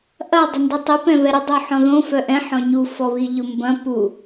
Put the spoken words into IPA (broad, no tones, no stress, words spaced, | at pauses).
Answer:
ʔɐ dˤʊndetˤi pɛ̃βɛɾə dˤuħɔ̃ðõ fœʔɛ̃ ħɔ̃ɲu fɔβiʎʊmbɐ̃ pu